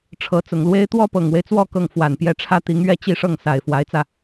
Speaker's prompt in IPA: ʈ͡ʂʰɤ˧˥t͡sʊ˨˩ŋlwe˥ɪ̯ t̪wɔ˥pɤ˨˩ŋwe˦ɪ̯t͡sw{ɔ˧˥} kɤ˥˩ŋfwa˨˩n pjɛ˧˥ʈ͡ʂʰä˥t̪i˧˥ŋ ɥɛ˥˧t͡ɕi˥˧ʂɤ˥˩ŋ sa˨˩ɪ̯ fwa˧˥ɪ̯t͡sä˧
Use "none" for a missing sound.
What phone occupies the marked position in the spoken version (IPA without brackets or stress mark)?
ɔ˥˧